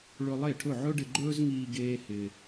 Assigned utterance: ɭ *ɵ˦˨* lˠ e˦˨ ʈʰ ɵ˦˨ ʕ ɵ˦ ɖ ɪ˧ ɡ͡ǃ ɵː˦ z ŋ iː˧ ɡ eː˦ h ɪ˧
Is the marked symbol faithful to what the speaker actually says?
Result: no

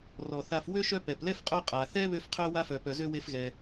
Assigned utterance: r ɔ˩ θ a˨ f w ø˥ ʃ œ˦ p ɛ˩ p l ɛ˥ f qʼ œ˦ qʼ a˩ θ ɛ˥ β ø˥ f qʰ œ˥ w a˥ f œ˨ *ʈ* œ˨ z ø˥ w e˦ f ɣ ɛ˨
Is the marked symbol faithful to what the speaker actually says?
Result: no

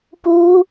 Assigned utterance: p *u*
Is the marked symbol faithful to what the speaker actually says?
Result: yes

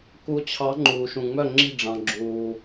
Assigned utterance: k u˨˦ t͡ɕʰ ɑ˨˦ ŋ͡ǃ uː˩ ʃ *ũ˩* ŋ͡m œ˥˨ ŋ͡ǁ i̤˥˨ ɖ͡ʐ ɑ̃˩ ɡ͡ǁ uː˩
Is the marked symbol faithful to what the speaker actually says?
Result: yes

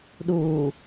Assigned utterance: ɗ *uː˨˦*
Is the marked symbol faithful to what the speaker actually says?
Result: no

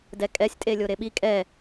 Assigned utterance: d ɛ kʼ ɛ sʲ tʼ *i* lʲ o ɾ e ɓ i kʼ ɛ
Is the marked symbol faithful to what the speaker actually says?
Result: no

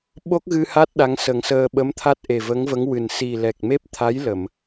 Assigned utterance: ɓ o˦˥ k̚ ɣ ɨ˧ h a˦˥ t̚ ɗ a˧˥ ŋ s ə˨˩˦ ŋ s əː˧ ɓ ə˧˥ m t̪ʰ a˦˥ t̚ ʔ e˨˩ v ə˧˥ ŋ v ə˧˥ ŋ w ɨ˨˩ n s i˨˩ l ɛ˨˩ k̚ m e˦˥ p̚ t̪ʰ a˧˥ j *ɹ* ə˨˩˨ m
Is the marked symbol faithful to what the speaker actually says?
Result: no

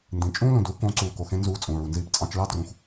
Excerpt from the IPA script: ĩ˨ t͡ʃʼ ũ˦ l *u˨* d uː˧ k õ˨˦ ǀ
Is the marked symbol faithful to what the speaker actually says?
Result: no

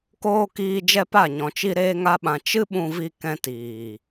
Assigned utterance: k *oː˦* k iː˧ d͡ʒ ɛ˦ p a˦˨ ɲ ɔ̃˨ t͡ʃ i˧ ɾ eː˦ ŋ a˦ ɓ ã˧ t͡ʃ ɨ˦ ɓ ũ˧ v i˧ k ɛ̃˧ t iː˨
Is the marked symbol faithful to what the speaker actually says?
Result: yes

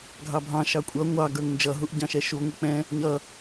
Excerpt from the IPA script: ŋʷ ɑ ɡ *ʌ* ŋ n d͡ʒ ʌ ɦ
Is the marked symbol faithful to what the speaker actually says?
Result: no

